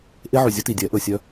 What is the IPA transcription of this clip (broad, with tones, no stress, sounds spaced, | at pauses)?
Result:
ʔ e˦ ʕ y˨ zʲ ɵ˦ t i˨ dʲ ɛ˨˦ ʔ ɵ˨ sʲ œ˦